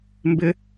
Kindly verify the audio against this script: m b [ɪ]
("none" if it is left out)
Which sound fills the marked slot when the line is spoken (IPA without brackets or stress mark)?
ɪ